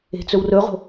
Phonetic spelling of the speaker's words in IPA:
e̤ t͡s ɵ w r ɵ ʁ o̤

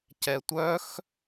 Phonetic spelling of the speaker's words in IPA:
c ɛ tʷ œ x

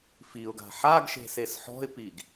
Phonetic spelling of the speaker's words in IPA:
f i ʊ̯ ɡ a̤ ħ a ɡ ʃ e̤ s e s ħ ɔ̤ ɪ̯ p i ɡ

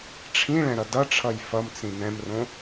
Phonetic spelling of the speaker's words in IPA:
ʈ͡ʂʰ ĩ ɭ ɛ̃ ɾ ʌ d ʌ ʈ͡ʂʰ ʌ j f ʌ m t͡s ĩ n ɛ̃ m r õ

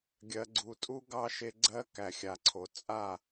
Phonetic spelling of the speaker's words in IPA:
ɡʲ ɜ˨ ɡ͡ǀ u˨ tʼ u˦ ɡ ɑ˦ ʃ e˧ ɡ͡ǀ ɜ˦ k æ˨ xʲ a˨ ǀʰ o˨ t͡sʼ a˦˨

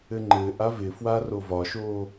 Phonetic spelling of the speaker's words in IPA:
ɘ ŋ͡ǃ ɘː ʔ a v ɪ f w a r o v ɒ ʃ oː

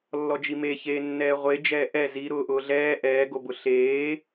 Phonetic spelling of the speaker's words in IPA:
lː ɔ d͡ʒ i m e ç eː nː ɛː ʁʷ e d͡ʒ ɛː ʔ ɛ z i ɾ ʊː ʔ ʊː ɮ ɛː ʔ ɛː ɡ o b ʊ ɬ eː

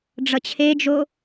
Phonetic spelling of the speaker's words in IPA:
ɖ͡ʐ ʌ t͡ɕʰ e d͡ʒ o

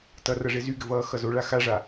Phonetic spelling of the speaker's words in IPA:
t ʌ r ʌ ʐ e z y ɡ ɘ v ʌː x ʌ z o ɭ a x a ʐ a

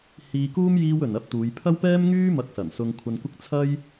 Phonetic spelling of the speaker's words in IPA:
h iː˧ k uː˥ m j iː˥ w ɵ˨ n ɐ˥ p̚ t̪ uː˨˧ j pʰ ɐ˥ w p ɛː˥ m ŋ yː˥ m ɐ˧ k̚ s ɐ˨˩ n s ʊ˧ ŋ kʷʰ ɐ˧ n kʷ ɪ˥ k̚ t͡sʰ ɐ˥ j

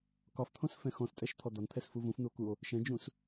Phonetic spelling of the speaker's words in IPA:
k ɒ f t̪ʰ õ s f ɛ̃ x ɔ̃ s tʼ ɛ ʃ t̪ʰ ɔ d̪ ɒ n t̪ʰ ɛ s f u v ũ f n̪ u o̯ k u o̯ | ʃ ɛ̃ d͡ʒ ũ s

